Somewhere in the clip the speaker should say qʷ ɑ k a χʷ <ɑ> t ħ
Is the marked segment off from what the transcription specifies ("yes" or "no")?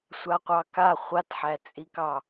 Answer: yes